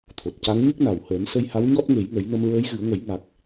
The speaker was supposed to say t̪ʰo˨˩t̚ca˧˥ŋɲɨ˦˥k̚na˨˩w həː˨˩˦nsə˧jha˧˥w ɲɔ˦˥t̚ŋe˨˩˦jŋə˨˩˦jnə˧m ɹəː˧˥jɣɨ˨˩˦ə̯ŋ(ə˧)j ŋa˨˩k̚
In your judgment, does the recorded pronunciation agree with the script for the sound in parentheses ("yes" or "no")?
no